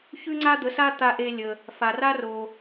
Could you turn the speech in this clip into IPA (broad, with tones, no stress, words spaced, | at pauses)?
çʉ˥ŋ͡ǀa˥d̪ə˩˥sa˥ t̪a˧ʔe˧lʲə˩ | fa˩ ra˥ro˩